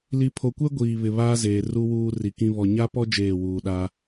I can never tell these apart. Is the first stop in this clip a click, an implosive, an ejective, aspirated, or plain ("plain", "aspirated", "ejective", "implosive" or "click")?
aspirated